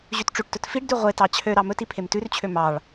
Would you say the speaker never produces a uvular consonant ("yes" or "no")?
no